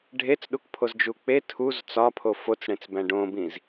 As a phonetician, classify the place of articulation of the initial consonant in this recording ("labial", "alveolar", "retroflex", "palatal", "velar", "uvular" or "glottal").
retroflex